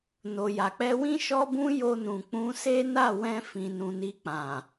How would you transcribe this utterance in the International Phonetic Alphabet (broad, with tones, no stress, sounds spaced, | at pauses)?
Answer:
n o˨ j a˨ k͡p ɛ˧ w ĩ˦ ʃ ɔ˦ b ũ˦ j o˧ n ũ˨ k͡p ũ˧ s e˦ n a˦˨ w ɛ̃˧ f ĩ˨ n ũ˨ n i˧ k͡p ã˨